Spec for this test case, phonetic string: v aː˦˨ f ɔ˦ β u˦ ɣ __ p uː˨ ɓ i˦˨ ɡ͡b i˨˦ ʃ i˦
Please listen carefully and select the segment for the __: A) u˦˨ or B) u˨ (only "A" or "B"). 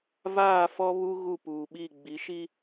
A